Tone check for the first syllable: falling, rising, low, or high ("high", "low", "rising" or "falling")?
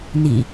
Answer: low